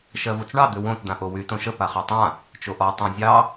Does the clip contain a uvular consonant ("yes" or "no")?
yes